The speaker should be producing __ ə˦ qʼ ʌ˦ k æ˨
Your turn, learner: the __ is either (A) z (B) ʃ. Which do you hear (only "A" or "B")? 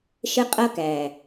B